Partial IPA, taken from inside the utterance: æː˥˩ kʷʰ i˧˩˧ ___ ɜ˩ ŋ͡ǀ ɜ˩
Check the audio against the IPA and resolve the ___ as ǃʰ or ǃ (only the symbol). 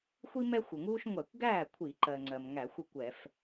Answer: ǃ